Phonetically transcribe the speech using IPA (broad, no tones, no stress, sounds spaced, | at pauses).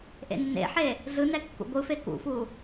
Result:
ʔ ḛ nː ḛ ħ e | ɮ ɯ n ɛ kː ṵ ɡʷ ɯ f e k ṵ f u